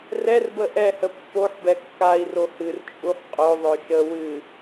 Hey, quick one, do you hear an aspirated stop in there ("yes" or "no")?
no